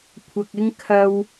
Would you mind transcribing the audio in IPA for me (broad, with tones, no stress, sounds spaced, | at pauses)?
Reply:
kʷʰ ɐ˧ k̚ ɪ˥ ŋ kʰ ɐ˥ w